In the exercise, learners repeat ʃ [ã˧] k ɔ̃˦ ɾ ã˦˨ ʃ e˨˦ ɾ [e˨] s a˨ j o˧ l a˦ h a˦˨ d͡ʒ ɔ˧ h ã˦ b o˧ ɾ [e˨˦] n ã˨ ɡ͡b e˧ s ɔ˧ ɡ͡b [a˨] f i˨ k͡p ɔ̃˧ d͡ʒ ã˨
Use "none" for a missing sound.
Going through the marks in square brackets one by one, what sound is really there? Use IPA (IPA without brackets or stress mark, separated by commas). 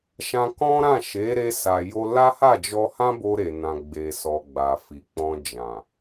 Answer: ã˧, e˧, e˨, a˨